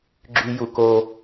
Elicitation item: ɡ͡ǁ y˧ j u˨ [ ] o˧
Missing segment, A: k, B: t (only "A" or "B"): A